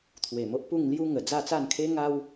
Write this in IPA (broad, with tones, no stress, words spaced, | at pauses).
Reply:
t̪ʰwe˨˩mo˦ʔ pu˥˧ŋlju˦ ŋə˨˩ d͡za˥˧t͡sa˥˧nkʰe˦ ŋa˦w